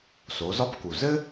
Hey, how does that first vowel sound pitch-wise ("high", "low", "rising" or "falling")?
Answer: rising